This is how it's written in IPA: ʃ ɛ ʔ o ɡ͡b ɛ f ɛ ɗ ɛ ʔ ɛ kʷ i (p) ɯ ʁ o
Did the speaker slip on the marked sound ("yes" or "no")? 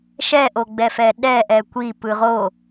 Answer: no